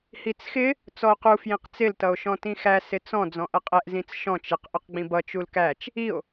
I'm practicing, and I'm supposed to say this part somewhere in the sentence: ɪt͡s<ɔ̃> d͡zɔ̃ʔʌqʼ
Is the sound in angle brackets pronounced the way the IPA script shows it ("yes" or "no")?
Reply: yes